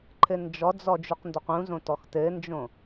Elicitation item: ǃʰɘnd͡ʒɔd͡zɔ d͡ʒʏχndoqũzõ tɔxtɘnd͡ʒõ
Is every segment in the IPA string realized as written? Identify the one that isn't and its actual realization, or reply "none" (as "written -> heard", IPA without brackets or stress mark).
χ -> q